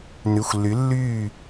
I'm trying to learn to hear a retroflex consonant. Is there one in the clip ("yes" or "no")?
no